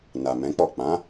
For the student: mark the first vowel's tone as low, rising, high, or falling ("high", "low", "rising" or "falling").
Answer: low